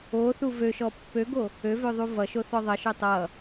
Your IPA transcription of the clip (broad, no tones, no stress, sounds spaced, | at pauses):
o θ u v ø ʃ ɔ pː ø ɡ o | ø v ø ðˤ u v ʌ ʃ o θ ɔ ðˤ ʌ ʃ ø tˤ ʌ